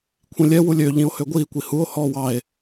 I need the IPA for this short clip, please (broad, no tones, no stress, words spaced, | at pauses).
kʷʰĩlʲɛ wulʲø ʎĩo̯høɡʷiː kʷihuo̯ hɔːwɑe̯